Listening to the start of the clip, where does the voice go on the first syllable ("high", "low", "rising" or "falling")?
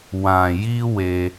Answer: low